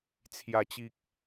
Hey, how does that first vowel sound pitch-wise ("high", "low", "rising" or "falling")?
low